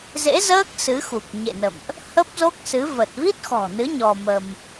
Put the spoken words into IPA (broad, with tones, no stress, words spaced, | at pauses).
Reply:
zḛ˧˥zəː˦˥k̚ sɨ˨˦xu˨˩k̚ ɲḛ˧˨nə̰˧˨mʔ | hə˦˥p̚zo˦˥k̚sɨ˨˦ və˨˩t̚vi˦˥t̚xɔ̤˨˩nɨ˨˦ ɲɔ˧mə˧m